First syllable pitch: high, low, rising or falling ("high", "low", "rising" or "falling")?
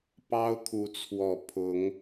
high